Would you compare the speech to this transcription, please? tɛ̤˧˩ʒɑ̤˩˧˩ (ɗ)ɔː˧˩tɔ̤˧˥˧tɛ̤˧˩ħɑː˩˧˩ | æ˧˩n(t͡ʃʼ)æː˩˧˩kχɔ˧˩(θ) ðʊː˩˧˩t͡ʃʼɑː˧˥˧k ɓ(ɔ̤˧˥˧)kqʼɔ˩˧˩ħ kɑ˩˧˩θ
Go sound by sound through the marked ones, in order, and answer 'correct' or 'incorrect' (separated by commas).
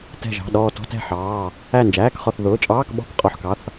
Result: correct, incorrect, correct, correct